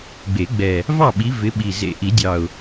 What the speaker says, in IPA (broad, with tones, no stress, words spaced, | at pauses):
ɡ͡be˨˩˦ɡ͡bɛ˨˩ | vɑ˥˨ɓi˨˦ vɪ˨˦ɓi˨˩ zḛ˨˩ʔi˨˩˦dʲɑ˨˩ʊ̯